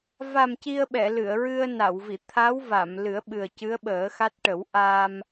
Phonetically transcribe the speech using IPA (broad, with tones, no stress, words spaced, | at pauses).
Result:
va˨˩m ci˧ə̯ɓɛ˨˩˨ lɨ˨˩˨ə̯ɹɨ˧ə̯na˨˩˨wvi˨˩˨ t̪ʰa˧˥w va˨˩˨mlɨ˨˩˦ə̯ ɓɨ˨˩ə̯ cɨ˧˥ə̯ɓəː˨˩˦xa˦˥t̚ ʈə˨˩˦w ʔa˧m